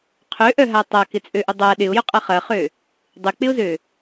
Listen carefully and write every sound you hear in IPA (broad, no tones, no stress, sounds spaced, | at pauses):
qʰ ø ʔ œ ɦ a tˤ a k ɪ t͡sʼ ø ʔ ʊ dˤ a ɗ ɪ ʊ̯ j ʊ qʼ ɐ χ ɐ χ ø | dˤ ɪ k͡p ɪ ʊ̯ z ø